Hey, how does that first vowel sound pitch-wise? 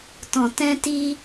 low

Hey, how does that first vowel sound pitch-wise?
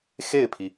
falling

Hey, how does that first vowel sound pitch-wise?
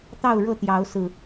falling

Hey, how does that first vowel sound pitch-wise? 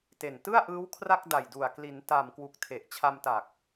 low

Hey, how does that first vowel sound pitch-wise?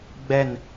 falling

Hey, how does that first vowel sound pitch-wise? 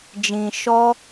low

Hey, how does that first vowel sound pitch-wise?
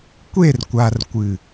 falling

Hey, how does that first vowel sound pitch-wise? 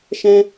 high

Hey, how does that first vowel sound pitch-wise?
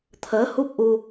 rising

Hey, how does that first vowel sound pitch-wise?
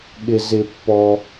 low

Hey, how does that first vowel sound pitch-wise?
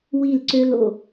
falling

